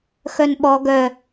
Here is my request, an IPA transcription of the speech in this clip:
x œ n ɓ ɔ ɡ œ

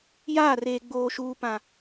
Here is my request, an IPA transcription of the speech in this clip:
j aː˦˨ r eː˨ ɡ͡b oː˨ ʃ uː˨ p ã˨

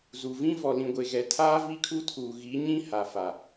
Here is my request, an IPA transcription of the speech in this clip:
z u˨ v ĩ˦ v ɔ˨ l ĩ˨ ɡʷ e˨ ɣ ɛ˨ tʰ aː˦ v i˦ kʰ u˦ tʰ uː˨ ɣ i˨˦ ɲ ĩ˦ h a˨ f a˨

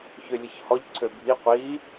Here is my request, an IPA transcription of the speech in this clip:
ç ø lʲ ə ç h ɔ ʎ ǀʰ ø bʱ i qʷ i

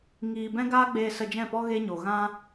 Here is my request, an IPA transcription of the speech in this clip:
ŋ iː˧ b ɛ̃˦ ɡ aː˦ ɡ͡b eː˧ s ə˧ d͡ʒ ɛ̃˦˨ p ɔ˦ ɣ e˦ ɲ o˨ ɣ ã˦

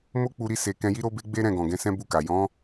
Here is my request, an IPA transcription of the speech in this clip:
m o˦ k͡p u˧ ɾ i˦ s e˧ k ɛ̃˧ j i˦ ɾ o˦ b e˦ ɡ͡b e˦ ɾ ɛ̃˦˨ ɡ ɔ̃˨ ɡ ɛ̃˧ s ɛ̃˦ b u˦˨ k a˨ j ɔ̃˨˦

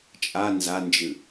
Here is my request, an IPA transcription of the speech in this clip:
t͡ʃʼ a n z a n d͡ʒ ɨ

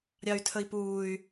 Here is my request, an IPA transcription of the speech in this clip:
ɾʲ ɑ y̯ tʰ ə i̯ p uː y̯

